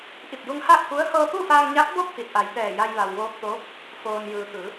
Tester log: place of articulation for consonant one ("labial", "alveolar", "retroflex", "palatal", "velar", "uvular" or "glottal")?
glottal